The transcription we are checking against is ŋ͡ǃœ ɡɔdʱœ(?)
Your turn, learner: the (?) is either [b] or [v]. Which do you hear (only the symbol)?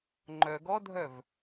v